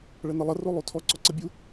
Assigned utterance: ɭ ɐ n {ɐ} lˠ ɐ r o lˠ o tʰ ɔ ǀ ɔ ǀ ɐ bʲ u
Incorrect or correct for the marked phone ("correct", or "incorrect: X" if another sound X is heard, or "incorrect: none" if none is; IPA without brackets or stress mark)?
correct